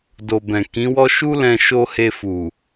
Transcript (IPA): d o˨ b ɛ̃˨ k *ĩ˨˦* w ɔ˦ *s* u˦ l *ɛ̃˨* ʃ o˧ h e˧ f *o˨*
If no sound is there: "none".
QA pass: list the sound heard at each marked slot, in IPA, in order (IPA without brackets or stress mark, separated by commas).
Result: ĩ˨˦, ʃ, ɛ̃˧, u˨